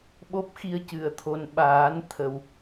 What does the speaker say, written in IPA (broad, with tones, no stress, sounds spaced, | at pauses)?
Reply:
ɓ o˦˥ p̚ x i˧ ə̯ c ɨ˨˩˨ ə̯ t̪ʰ o˨˩ n ɓ aː˨˩˦ n t̪ʰ ə˨˩ w